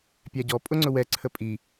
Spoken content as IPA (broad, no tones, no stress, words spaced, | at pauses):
pʲæɟɔ pʼʊŋ͡ǀʊwɛ ǀʰəpʼi